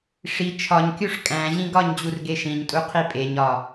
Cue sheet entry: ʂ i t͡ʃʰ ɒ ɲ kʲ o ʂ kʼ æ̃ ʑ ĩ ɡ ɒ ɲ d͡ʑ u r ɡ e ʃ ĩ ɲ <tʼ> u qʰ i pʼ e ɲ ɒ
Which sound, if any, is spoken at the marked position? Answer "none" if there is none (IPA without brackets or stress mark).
tʼ